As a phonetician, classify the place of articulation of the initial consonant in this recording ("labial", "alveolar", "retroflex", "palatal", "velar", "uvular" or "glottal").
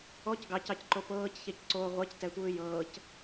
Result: palatal